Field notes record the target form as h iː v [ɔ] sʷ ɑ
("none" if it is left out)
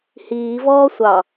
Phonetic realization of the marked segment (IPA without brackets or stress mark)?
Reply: ɔː